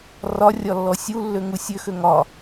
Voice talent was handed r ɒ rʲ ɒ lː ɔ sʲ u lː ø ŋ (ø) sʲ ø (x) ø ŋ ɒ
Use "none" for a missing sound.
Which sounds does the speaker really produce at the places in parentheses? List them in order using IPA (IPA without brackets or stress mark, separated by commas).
u, x